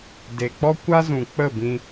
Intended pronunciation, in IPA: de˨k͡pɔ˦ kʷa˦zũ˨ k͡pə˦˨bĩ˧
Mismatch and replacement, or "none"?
none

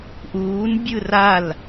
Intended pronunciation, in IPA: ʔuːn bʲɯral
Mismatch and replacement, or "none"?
none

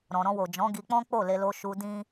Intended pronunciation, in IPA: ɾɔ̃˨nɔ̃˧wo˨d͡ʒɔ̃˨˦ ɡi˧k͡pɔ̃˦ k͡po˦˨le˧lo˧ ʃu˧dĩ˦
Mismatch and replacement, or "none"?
n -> ɾ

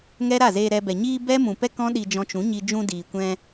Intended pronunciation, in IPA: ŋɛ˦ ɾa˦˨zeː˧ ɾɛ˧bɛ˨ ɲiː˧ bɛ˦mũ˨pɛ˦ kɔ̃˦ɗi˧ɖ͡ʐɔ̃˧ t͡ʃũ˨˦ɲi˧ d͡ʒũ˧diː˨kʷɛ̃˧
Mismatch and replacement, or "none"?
ɖ͡ʐ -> d͡ʒ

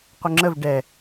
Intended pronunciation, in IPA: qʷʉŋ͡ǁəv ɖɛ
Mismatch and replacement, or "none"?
ʉ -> ə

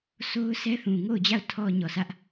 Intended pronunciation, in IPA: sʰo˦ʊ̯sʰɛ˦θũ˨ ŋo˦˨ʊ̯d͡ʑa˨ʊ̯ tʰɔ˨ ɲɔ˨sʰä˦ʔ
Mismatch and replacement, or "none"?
a˨ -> a˦˨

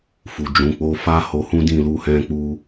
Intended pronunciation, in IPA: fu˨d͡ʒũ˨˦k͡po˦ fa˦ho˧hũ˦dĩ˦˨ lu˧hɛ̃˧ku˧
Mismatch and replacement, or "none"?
k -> k͡p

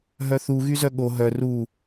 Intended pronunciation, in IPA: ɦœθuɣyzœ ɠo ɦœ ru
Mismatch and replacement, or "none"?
none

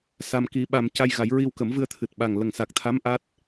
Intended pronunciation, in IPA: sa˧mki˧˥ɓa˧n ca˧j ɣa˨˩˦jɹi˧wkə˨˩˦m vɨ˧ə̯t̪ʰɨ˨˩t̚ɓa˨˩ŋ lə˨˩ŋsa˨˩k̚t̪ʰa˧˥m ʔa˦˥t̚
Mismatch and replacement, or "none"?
n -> m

